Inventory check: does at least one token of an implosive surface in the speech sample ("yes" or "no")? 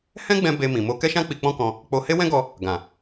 no